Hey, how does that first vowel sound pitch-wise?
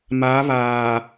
rising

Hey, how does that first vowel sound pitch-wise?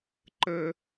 high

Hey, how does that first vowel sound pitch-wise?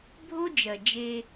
high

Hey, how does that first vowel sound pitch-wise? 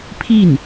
falling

